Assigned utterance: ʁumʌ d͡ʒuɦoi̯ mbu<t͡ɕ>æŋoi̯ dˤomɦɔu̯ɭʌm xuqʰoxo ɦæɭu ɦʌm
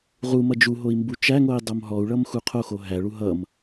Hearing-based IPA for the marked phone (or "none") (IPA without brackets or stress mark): t͡ʃ